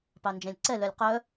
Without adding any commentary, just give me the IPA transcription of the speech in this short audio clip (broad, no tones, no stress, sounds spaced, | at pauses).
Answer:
p ɑ n d͡ʒ ɛ̃ lʲ ǀ ɛ l œ lʲ q œ